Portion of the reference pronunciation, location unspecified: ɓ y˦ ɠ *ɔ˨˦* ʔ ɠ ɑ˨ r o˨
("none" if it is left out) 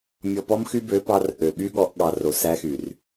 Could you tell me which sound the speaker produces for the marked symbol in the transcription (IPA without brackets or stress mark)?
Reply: ɔ˨˦